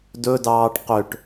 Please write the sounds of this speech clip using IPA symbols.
d ɵ d ɑː ʈ q ø ʈ

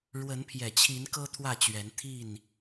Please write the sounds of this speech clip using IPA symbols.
ɻ w ə˨˦ n pʰ j ɛ˨˩ t͡ɕʰ i˨˦ n k ɤ˦ t̪ʰ w ä˥˨ t͡ɕ ɥ ɛ˨˦ n t̪ʰ i˥˨ n

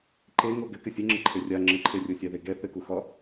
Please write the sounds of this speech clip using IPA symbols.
ǃ e ŋ o ɡ ɘ k ɘ sʲ ɘ ŋ͡ǁ ɘ ǃʰ e rʲ a ŋ͡ǁ ɘ ǃʰ e rʲ o sʲ a ð e ɡ ɛ θ ɘ k u x ɒ

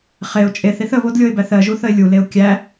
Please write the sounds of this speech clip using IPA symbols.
χ e ʊ̯ t͡ʃʼ e θ i θ ə β o d lʲ o ɪ̯ b æ θ ɜ ʒ u θ ə ɪ̯ lʲ u l e ʊ̯ kʲ æ

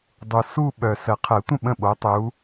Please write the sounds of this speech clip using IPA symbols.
dˤ u˨ s u˥˧ ɓ œ˨ s ə˨˩˦ qʰ ə˨˩˦ tʷ ə̃˥˩ ɓ ə̃˥˩ ɓ o˨˦ tˤ u˨˦

